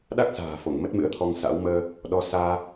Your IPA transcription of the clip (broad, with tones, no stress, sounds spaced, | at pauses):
ɗ a˦˥ k̚ s a̤ː˨˩ f o˧˩ ŋ m ə˦˥ t̚ m ɨ̰˧˥ ə̯ t̪ʰ ɔ˧ ŋ s a̰˧˥ w m əː˧ | ɗ ɔ˧ s aː˧